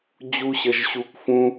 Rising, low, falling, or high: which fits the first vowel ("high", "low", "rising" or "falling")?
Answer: high